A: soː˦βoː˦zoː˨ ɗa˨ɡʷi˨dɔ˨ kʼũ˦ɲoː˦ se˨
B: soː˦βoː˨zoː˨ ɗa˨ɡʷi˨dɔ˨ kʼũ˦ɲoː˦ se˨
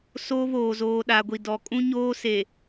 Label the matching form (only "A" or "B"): B